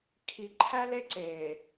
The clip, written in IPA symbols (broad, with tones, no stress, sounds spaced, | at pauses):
kʰ i˨ ǃʰ æ˦ l e˦ ǀ e˨